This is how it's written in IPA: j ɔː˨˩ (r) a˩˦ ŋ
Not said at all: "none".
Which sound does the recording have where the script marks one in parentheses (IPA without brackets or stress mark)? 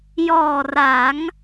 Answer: r